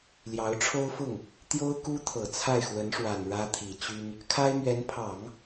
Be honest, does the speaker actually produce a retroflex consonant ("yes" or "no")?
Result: yes